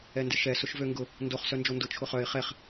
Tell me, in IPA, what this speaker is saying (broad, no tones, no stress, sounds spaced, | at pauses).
ɛ n d ɪ ʃ ɛ s ʊ ʃ v ø ŋ ɡ ʊ | n d o χ s œ n d͡ʒ o n d ʊ t͡ʃʰ ʊ χ œ ɪ̯ χ ɛ χ